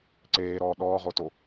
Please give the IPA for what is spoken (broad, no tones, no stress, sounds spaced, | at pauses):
ǀ eː ɾ ɔː ɗ ɔː ʁ o t o